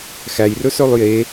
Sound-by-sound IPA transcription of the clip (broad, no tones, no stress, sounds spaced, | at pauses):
x æ j r ɵ s œ lˠ j e